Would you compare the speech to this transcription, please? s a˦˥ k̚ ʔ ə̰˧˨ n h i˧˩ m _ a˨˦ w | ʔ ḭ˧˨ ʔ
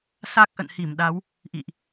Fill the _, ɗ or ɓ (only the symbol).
ɗ